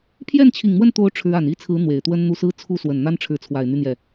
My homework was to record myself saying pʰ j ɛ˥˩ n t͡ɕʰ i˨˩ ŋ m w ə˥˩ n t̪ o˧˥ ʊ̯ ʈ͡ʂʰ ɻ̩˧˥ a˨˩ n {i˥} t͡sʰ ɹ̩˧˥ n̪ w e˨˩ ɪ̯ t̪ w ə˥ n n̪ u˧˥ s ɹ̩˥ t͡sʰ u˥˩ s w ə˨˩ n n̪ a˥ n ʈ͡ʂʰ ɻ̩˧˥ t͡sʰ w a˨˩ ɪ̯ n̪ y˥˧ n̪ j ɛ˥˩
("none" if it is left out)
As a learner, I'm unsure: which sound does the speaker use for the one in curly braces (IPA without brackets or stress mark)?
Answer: i˥